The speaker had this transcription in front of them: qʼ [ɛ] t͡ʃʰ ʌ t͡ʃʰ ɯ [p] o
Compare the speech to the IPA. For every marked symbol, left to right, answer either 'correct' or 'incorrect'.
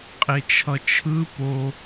incorrect: e, correct

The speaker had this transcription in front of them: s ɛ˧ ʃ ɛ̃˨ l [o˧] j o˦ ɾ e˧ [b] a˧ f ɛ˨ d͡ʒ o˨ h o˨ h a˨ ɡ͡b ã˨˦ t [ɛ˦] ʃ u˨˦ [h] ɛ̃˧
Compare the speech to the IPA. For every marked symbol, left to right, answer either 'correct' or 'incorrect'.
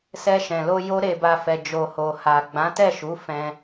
correct, correct, incorrect: ɛ˦˨, incorrect: f

